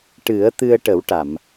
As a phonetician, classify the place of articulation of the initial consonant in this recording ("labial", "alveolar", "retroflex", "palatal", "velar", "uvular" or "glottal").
retroflex